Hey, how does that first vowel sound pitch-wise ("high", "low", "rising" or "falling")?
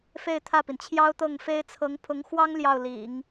falling